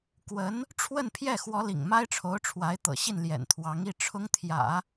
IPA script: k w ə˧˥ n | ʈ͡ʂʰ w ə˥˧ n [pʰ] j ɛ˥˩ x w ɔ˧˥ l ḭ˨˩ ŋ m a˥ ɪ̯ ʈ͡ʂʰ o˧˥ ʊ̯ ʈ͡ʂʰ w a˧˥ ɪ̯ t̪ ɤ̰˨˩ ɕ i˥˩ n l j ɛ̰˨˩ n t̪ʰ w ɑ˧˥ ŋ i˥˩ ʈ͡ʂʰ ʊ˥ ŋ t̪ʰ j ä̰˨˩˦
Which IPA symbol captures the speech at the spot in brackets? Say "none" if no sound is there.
pʰ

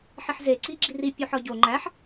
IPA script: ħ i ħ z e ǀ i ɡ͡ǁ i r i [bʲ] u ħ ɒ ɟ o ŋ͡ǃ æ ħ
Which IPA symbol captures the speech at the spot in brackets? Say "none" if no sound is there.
pʲ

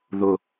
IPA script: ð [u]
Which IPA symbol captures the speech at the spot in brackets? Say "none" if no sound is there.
ʊ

